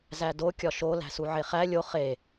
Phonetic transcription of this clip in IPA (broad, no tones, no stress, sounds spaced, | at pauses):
z æ d o kʲ ɒ ʃ o l æ̤ s u ʕ e χ æ lʲ o χ e